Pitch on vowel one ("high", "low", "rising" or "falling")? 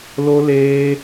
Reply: high